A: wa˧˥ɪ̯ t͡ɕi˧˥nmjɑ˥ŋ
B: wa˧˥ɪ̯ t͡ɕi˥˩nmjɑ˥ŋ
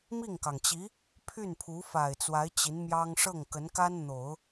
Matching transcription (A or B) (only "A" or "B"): A